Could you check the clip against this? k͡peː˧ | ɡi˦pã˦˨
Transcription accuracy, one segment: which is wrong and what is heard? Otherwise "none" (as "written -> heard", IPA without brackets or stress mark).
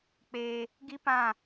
none